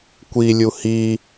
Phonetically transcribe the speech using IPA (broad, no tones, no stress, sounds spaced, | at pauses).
kʷ i lʲ u h i